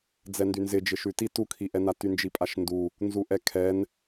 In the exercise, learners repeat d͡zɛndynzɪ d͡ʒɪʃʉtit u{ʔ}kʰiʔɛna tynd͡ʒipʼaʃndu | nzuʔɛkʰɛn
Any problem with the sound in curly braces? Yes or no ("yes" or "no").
yes